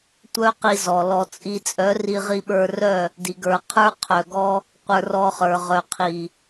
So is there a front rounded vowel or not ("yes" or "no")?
yes